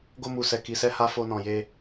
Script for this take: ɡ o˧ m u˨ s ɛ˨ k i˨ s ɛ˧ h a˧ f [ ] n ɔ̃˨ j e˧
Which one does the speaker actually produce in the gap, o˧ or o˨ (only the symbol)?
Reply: o˧